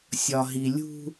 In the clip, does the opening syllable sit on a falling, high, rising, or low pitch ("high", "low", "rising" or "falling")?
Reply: low